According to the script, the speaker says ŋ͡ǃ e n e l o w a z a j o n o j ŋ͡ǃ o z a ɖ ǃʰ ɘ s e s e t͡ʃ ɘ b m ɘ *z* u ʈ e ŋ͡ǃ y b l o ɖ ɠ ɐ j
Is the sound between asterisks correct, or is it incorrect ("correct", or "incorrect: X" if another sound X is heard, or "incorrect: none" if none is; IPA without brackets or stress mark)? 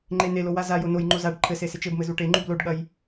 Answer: correct